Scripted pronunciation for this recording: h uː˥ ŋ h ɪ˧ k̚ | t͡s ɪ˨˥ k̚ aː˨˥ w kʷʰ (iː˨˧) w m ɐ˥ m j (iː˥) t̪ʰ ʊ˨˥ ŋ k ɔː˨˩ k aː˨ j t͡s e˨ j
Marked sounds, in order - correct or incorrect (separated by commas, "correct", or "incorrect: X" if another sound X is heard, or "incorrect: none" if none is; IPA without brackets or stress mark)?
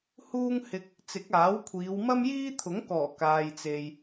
correct, correct